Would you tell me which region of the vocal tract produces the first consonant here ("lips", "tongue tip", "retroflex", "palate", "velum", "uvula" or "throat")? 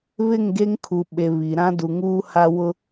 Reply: lips